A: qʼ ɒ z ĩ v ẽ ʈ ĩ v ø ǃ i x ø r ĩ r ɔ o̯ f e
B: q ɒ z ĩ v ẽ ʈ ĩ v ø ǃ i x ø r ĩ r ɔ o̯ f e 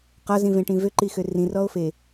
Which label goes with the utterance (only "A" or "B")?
B